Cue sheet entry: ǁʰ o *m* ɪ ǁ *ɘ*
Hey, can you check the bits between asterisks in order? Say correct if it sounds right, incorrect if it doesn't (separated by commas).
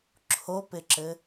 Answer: incorrect, correct